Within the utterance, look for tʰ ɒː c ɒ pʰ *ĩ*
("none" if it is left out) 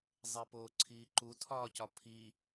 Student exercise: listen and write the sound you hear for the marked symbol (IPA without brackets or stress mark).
i